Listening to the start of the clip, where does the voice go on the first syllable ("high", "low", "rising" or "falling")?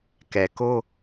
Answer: low